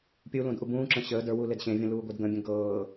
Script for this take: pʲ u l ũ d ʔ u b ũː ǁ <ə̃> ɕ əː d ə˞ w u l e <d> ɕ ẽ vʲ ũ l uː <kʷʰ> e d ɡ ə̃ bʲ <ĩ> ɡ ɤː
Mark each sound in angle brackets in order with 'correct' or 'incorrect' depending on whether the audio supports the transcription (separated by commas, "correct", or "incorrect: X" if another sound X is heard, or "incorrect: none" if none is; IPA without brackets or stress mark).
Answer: correct, correct, incorrect: ɡʷ, incorrect: ẽ